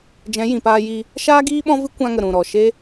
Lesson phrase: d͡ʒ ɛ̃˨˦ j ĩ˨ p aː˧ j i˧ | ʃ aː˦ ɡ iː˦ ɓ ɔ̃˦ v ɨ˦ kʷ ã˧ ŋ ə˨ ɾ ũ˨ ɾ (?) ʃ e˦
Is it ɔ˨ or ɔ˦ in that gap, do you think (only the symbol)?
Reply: ɔ˨